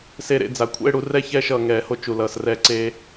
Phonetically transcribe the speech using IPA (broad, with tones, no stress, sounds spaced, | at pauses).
s e˧ ɾ ḛ˧ d͡z a˩ kʷʰ ɛ̰˥˧ e̯ ɽ u˧ r ɛ˥˧ ç ɛː˥˧ ʃ ʌː˩ ŋ ɛː˨˩˦ h o˧ t͡ʃ u˩ l ʌː˩ s r ɛː˧ ǀ eː˧